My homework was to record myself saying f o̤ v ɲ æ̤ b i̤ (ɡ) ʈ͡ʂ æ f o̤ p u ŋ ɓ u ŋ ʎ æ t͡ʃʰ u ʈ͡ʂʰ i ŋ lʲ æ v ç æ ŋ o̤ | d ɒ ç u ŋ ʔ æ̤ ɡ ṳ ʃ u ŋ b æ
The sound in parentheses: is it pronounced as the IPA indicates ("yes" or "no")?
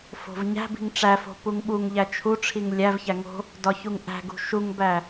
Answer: no